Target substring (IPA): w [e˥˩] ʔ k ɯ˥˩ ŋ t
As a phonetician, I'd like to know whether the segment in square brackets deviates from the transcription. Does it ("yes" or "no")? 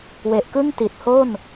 yes